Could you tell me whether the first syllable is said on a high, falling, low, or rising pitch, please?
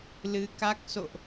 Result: rising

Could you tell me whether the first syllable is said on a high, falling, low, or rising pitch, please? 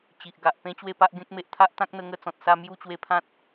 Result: low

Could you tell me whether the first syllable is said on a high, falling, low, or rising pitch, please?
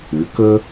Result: rising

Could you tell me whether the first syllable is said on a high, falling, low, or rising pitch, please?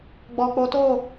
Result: low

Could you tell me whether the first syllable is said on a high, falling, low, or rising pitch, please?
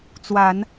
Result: low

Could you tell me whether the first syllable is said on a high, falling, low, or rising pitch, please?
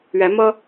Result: rising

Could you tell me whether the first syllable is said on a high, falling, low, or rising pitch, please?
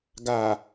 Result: low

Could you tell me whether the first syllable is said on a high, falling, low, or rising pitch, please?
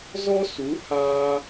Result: high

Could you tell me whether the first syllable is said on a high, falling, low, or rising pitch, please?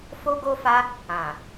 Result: high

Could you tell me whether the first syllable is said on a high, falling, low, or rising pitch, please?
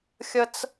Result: high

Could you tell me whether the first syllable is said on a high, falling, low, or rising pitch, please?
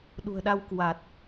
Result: low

